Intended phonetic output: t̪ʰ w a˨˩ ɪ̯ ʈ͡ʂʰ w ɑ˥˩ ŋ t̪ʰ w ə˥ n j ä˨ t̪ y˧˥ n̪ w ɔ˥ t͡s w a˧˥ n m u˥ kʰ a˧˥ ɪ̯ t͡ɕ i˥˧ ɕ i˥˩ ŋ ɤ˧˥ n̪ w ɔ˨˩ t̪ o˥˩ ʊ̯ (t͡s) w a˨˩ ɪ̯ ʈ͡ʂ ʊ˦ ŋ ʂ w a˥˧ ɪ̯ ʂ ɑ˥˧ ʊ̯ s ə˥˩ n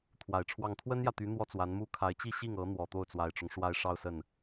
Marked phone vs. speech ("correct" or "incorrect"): correct